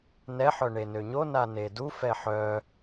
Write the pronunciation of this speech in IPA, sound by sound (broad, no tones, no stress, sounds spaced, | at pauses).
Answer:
n ɛ ħ œ ɳ e n ø ɲ o n a n e d u f ɛ ħ œ